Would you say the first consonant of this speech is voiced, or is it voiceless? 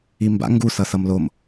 voiced